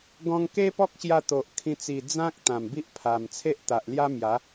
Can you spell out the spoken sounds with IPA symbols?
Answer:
ɡ ɔ̃˧ ŋ k e˦ p ɔ˦ k̚ ɕ j a˧ t̪ o˨ ʔ kʰ ĩ˧ t͡s i˨˩ d͡z ã˦ k̚ t̪ ã˨˩ m b i˦ ʔ pʰ a˨˩ m t͡sʰ e˦ ʔ t̪ a˨ ʔ l j a˦ m j a˨˦

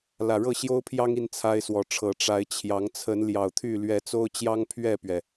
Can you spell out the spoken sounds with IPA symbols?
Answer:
l ä˨˩ ɻ ɤ˥˨ ɕ j o˦ ʊ̯ pʰ j ɑ˦ ŋ i˦ n t͡sʰ a˦ ɪ̯ s w ɔ˨˦ ʈ͡ʂʰ ɤ˨˦ ʈ͡ʂ a˨˦ ɪ̯ t͡ɕʰ j ɑ˨˦ ŋ t͡sʰ ə˨˦ n l j ɑ˨˩ ʊ̯ t̪ʰ y˥˨ l ɥ ɛ˨˦ t͡s o˦ ʊ̯ t͡ɕ j ɑ˦ ŋ pʰ ɥ ɛ˥˨ p ɥ ɛ˩

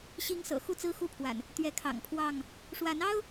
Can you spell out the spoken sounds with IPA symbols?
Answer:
ɕ i˦ ŋ s ɤ̰˨˩ x u˥˨ t͡s ɹ̩˦ x u˦ pʰ w a̰˨˩ n | t̪ ɥ ɛ˨˦ kʰ ɑ̰˨˩ ŋ pʰ w ɑ˥˨ ŋ | ʂ w a˨˦ n ɑ˦ ʊ̯

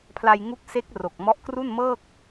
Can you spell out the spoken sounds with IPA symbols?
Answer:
pʰ l a˧ j ŋ u˦˥ k̚ s e˦˥ k̚ r o˨˩ k̚ m ɔ˦˥ ʔ k r u˥˩ n m ɤː˥˩ k̚

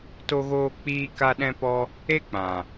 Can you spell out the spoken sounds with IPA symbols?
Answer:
t o˧ ɣ oː˧ k͡p iː˧ k a˦ ɗ ɛ̃˧ p ɔ˧ | e˦ k͡p ã˨

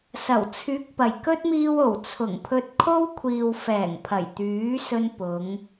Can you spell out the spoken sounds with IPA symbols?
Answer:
s ɐ˨˩ w t͡sʰ yː˨˥ k̚ p ɐ˨˩ j k ɵ˥ t̚ m iː˧ w o˨˩ w t͡sʰ ʊ˨˩ ŋ pʰ ɵ˧ t̚ kʰ o˥ w kʷʰ iː˨ w f ɛː˨˩ ŋ pʰ ɐ˨˩ j t̪ yː˨˥ s ɵ˧ n p ʊ˨˧ ŋ

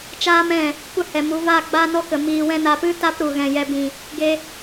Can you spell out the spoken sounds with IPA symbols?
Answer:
t͡ʃ aː˦ m ɛ̃˦˨ | kʷ ə˦˨ h ɛ˨ m u˨˦ v a˦˨ ɡ͡b a˦ n ɔ˦ k ə˨ m iː˨ w ɛ̃˧ n a˨ p ɨ˦ t a˦ p ɾ u˨ ɣ ɛ̃˨ j ɛ˨ b ĩ˨ | ɡ e˦

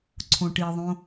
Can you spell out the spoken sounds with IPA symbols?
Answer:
ǀʰ õ ʈ i ðˤ õ

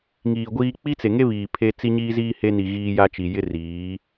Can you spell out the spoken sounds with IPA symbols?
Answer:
ŋ iː˨ ɡʷ iː˦ k͡p i˦ t͡s e˨ ŋ e˦ β iː˨ pʰ e˦ t͡s i˦ ɲ iː˦ z iː˦ h e˦ n i˨ ɣ iː˦ j a˦ t͡ʃ i˨ j ɪ˦ r iː˨˦

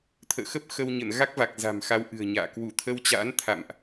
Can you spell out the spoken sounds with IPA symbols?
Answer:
t̪ʰ ə̰ː˧˨ x ə˦˥ p̚ x ə˧ w ɲ ə̰˧˨ n ɣ a˦˥ k̚ v a˨˩ k̚ z a̤˨˩ m x a˧ w ʔ ɨ̤˨˩ ə̯ ɲ a̰ː˧˨ k w u˧˩ t̪ʰ ə˧ w t͡ɕ a̰ː˧˥ n t̪ʰ a̰˧˨ m ʔ

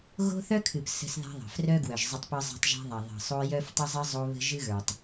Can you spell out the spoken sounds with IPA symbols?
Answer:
ɣ o̤˦ θ œ˦ kʰ ɨ˨ p s ə̤˦ s ð a̤˦ ðˤ ə̤˨ f r œ˦ ɡ w œ˨ ʒ zˤ ə˦ tˤ p ə˞˦ zˤ a̤˦ tˤ ʒ a̤˦ ðˤ a˨ ðˤ ə̤˨ sˤ o˦ j œ˦ f tˤ ə˦ zˤ ə˦ zˤ o˦ β ə̤˦ ʒ ɨ˦ ɣ ə˞˨ tˤ

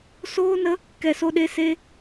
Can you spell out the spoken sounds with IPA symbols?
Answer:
s oː˦ n ə˦ | k ɛ˧ s o˦ ɗ e˦ s e˦

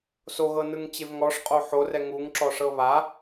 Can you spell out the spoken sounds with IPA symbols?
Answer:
s o ɣ ɤ n ɯ ŋ t͡ɕ e v ŋ ɔ ʂ qʼ o ħ o r ɛ ŋ u ŋ ǁ ɔ ʂ ɤ β a

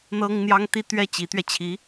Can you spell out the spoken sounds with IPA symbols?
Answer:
n̪ ɤ˥ ŋ n̪ j ɑ˥ ŋ t̪ i˥˧ t̪ ɥ ɛ˥˩ t͡ɕ i˧˥ t̪ ɥ ɛ˧ t͡ɕʰ i˧˥

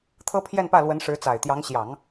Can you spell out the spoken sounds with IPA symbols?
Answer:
t̪ʰ ɤ˥ pʰ j ɛ˥˧ n p ä˥˩ l w ə˧˥ n ʂ ɻ̩˧˥ t͡s a˨˩ ɪ̯ t̪ j ɑ˧˥ ŋ ɕ j ɑ˨˩˦ ŋ

